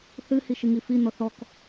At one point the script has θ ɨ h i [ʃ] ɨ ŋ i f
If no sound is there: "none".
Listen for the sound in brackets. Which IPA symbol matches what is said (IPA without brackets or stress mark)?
ʃ